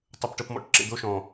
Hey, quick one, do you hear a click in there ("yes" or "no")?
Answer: yes